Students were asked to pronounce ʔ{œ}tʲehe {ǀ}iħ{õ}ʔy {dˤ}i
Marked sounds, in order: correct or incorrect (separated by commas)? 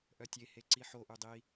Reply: correct, correct, incorrect, correct